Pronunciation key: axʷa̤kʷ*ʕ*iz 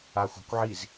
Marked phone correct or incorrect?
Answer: correct